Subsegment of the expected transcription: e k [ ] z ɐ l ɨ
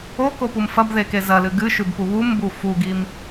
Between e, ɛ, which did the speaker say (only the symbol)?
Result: e